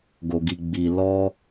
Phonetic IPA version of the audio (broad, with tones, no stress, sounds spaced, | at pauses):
ɡ o˨ ɡ i˨ ɡ͡b i˨ l ɔ˦